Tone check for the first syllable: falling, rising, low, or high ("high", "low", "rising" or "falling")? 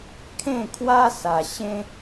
falling